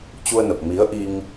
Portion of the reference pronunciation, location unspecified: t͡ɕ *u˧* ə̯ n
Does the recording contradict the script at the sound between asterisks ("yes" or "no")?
no